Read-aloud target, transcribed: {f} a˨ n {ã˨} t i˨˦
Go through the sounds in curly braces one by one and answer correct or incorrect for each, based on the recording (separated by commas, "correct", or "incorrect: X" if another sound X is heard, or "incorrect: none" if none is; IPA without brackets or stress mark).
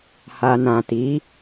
incorrect: h, correct